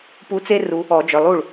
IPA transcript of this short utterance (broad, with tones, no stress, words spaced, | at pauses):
pu˧˥t͡se˥ ru˧˥ | ɔ˨˩˦ d͡ʒœ˩˧˩lˠu˥˩ɭ